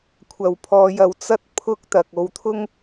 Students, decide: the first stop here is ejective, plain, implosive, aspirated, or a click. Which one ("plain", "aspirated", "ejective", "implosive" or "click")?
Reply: aspirated